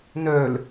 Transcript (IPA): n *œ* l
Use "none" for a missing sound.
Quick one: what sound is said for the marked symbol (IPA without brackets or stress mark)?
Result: œ